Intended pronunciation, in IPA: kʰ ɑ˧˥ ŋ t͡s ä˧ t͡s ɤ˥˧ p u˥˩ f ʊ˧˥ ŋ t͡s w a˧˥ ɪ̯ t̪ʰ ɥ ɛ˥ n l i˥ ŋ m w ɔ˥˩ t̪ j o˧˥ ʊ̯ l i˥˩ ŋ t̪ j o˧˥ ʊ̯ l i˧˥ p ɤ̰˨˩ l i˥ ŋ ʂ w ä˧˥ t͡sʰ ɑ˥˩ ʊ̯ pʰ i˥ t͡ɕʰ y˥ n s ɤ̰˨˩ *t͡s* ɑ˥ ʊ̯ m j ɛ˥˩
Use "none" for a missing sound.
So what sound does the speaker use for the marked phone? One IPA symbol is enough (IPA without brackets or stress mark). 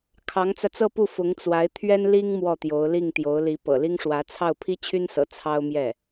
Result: t͡sʰ